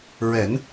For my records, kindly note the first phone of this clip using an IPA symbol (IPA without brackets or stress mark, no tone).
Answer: ɹ